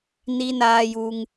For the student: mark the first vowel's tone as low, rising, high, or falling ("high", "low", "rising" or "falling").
high